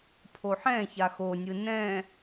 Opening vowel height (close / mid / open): mid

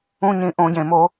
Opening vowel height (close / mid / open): close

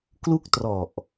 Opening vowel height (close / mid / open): close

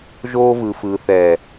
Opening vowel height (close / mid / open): mid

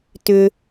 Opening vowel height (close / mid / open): close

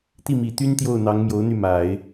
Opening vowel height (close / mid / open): close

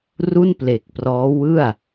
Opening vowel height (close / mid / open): close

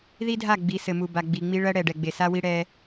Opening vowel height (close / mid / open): close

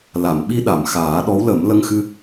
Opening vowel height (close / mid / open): open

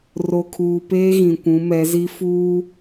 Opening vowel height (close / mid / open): mid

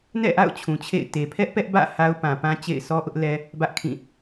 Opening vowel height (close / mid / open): mid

